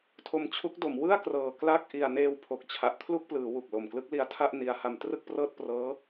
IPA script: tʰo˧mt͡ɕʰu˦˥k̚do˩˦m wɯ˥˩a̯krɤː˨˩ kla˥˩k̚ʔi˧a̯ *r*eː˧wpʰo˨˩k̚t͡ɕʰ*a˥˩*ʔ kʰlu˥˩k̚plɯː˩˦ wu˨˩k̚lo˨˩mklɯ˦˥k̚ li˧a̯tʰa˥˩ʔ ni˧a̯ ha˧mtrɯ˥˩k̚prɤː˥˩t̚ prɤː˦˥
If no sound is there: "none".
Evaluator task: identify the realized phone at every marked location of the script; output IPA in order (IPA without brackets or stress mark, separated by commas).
n, a˨˩